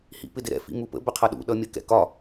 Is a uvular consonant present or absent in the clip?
present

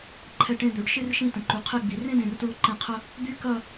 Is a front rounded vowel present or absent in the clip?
present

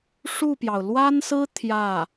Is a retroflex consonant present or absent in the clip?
present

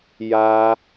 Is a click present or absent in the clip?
absent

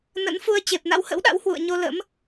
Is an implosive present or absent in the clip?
present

